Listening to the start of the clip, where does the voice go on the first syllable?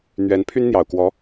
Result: rising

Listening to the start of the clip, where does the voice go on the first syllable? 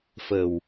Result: low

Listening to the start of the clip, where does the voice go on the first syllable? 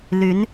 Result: rising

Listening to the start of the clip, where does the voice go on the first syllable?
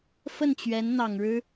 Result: falling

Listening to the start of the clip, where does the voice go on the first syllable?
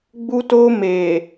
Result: high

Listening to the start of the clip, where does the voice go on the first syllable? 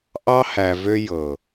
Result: high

